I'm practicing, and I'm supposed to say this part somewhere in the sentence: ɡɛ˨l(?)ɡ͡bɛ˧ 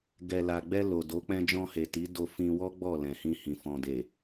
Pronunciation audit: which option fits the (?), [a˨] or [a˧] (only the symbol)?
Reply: a˨